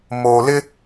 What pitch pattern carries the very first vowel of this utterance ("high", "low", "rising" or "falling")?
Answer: low